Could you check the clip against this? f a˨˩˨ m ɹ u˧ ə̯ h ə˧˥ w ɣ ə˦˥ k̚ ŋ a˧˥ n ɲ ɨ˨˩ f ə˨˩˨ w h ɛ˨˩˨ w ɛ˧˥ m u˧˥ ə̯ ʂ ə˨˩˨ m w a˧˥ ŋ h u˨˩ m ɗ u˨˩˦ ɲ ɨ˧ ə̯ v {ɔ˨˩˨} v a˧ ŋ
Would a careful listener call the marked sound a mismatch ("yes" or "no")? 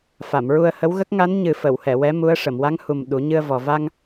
yes